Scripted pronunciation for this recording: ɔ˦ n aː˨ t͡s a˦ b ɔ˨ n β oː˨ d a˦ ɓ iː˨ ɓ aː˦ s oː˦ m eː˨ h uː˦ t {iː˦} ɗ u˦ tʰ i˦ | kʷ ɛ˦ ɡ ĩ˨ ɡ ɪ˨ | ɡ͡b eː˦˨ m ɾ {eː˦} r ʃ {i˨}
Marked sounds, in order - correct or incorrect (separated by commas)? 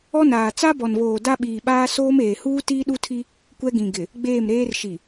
correct, correct, correct